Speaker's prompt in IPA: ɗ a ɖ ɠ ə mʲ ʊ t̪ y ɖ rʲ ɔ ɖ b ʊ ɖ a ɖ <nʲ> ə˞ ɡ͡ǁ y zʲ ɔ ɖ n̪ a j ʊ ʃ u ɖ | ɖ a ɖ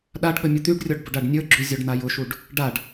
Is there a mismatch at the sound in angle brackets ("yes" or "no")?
no